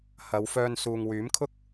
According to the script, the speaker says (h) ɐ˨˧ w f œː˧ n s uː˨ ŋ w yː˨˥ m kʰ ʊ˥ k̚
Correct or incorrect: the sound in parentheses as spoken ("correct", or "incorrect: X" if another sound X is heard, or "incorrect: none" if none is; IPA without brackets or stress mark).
correct